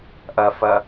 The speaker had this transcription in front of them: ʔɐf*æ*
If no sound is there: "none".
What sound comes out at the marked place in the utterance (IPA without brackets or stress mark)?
ɐ